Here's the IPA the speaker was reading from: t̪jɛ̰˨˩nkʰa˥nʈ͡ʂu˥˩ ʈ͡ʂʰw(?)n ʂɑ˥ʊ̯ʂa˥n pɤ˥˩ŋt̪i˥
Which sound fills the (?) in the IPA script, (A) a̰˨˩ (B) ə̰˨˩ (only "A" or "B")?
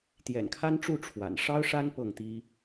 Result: A